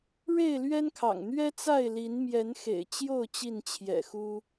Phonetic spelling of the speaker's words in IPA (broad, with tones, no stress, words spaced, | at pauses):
ɻe˥˨ɪ̯lɥɛ˦nkʰɑ̰˨˩ŋ n̪ɥɛ˦t͡sa˥˨ɪ̯li˨˦n mjɛ˨˦nxḛ˨˩ɪ̯t͡ɕjo˥˨ʊ̯ t͡ɕi˥˨nt͡ɕʰjɛ̰˨˩xu˦